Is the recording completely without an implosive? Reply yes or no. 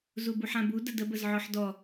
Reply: yes